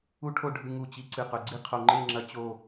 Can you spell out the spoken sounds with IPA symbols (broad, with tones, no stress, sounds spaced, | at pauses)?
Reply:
u˥ ʈʰ o˥˧ ɖʱ ɨ˧ ŋ u˧˩ t͡ɕ i˧ ǀ ɨ˧˩ q ɵ˩˧ ɡ͡ǀ i˥˧ qʰ o˧ ŋ͡ǃ e˥˧ ŋ͡ǁ ɐ˥ t͡ɕ o˥˧